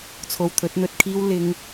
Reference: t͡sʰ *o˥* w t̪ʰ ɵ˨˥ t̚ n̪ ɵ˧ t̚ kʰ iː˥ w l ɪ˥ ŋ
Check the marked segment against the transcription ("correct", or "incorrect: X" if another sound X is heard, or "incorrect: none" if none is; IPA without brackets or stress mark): incorrect: o˨